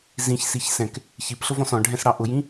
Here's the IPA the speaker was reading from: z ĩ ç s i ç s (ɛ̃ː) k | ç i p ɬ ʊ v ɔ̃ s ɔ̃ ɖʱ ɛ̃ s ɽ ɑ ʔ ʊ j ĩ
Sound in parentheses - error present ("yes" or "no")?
yes